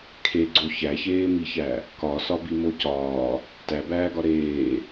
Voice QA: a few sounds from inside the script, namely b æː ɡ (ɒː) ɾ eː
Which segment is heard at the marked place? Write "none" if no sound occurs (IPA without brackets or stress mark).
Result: ɒ